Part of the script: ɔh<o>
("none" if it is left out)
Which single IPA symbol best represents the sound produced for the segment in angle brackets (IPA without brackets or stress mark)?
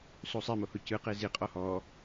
ɔ